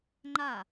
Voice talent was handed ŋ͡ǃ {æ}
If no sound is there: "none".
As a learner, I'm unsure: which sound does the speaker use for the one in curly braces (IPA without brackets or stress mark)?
a